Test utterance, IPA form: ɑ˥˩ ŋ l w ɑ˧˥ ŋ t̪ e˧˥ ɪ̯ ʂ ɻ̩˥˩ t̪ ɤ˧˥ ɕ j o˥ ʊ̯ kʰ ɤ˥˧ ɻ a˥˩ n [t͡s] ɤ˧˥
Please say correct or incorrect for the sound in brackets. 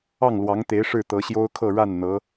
incorrect